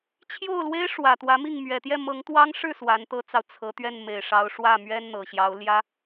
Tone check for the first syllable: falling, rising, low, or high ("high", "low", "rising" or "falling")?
falling